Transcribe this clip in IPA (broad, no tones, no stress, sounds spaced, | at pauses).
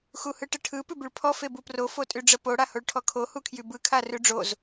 x u h ɯ ʈ ə ʈʰ ɯ p ʉ b y ɭ pʰ ɔ f e b u p r o f o tʼ y ɖ͡ʐ ə p o ɽ a h o ɭ ʈʰ ɔ kʰ o h u kʰ j y b ɯ kʰ a r ʉ ɖ͡ʐ o z